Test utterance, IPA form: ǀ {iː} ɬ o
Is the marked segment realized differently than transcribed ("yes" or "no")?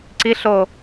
yes